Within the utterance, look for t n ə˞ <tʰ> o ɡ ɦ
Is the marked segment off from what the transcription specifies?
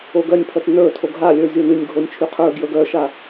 no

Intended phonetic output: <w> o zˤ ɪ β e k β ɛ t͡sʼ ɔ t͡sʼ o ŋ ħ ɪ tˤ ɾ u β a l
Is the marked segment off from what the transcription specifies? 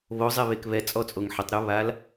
yes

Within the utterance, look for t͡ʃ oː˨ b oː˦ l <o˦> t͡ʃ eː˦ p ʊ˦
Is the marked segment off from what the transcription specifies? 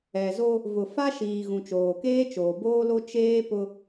no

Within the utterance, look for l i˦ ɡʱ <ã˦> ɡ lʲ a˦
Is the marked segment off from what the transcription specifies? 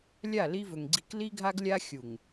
yes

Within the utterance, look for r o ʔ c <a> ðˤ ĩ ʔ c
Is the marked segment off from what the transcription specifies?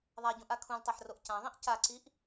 yes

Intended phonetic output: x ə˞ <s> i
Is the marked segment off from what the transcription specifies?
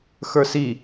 no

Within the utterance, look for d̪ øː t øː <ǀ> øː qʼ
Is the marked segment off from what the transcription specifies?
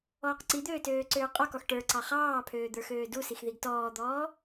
no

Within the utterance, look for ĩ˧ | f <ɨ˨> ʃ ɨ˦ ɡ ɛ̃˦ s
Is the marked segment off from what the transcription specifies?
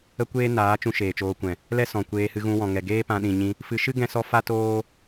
yes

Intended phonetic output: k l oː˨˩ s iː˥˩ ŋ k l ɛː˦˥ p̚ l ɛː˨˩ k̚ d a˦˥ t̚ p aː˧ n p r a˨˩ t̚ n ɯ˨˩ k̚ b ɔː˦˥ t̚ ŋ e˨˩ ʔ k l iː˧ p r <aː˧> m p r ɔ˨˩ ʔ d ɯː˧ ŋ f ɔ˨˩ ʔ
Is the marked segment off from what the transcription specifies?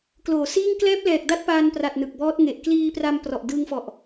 yes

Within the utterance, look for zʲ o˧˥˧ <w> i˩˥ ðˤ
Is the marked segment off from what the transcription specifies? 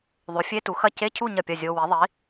no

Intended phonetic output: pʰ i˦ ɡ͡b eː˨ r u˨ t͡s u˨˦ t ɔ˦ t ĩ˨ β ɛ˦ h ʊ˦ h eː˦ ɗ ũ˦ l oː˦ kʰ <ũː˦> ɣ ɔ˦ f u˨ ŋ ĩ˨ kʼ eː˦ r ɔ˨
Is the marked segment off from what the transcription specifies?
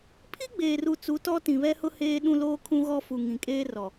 yes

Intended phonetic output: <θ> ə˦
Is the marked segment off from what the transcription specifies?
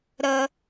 yes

